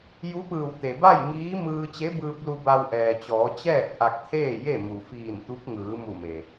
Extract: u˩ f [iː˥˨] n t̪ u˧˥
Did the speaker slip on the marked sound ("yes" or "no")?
yes